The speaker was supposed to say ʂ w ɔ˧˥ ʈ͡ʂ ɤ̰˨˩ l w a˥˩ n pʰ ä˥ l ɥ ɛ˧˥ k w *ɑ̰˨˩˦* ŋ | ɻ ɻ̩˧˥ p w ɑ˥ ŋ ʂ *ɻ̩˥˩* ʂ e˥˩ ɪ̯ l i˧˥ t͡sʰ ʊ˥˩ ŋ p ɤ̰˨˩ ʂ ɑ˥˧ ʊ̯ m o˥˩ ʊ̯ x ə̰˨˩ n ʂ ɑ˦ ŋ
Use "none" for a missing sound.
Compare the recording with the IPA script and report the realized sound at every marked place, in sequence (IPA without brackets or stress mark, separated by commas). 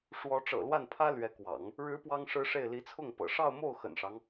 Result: ɑ̰˨˩˦, ɻ̩˥